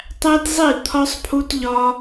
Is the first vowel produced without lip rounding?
yes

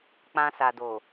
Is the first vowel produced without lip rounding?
yes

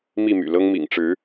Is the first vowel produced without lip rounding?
yes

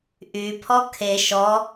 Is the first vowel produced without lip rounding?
no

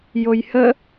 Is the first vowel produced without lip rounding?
no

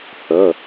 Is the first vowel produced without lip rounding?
yes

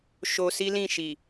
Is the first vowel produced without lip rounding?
no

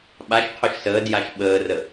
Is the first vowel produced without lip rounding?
yes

